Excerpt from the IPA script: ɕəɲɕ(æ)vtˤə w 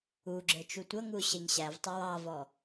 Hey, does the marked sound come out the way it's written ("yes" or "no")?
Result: yes